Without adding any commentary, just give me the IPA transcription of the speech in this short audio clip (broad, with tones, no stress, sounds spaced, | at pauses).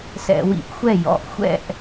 s ɛ̰˧˩˧ w ḭ˧˩ ʔ xʷ ɛ˥˩ j ɔ̰˩˧˩ ʔ xʷ ɛ̰˥˩ ʔ